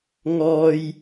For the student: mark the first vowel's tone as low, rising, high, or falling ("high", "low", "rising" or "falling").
high